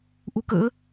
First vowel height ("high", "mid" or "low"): high